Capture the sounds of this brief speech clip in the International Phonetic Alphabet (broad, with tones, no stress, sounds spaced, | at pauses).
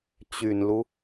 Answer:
t͡ɕ y˨˩ n l u˦